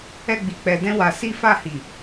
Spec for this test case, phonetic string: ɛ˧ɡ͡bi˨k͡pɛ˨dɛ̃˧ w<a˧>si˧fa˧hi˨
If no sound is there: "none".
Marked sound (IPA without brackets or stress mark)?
a˨